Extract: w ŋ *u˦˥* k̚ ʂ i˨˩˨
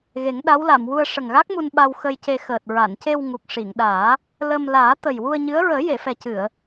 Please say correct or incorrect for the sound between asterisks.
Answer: incorrect